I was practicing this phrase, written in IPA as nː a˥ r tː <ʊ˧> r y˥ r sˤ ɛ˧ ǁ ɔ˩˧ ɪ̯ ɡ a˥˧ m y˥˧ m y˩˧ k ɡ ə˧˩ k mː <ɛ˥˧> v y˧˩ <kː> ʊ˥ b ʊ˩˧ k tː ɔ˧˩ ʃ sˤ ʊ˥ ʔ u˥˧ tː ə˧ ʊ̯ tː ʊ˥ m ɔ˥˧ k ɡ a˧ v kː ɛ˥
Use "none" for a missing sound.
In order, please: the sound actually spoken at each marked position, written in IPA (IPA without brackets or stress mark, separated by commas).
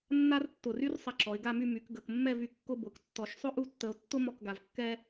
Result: ʊ˧˩, ɛ˥˧, kː